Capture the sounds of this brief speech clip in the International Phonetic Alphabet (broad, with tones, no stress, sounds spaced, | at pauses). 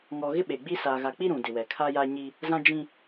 ŋ ɔ˨ ɣ ɪ˦ ɓ eː˨ ɡ͡b iː˦ s aː˨ ɣ a˨ k͡p i˦ ɾ ũ˨ d ɪ˨ w ɛ˨ kʰ a˦ j a˦ ɲ i˦ | z ã˦ d͡ʒ ĩ˦